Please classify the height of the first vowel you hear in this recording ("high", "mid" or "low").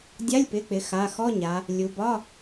low